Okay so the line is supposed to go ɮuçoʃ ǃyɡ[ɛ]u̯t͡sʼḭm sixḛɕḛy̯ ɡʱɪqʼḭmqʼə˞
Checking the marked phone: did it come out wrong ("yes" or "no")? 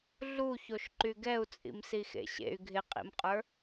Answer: no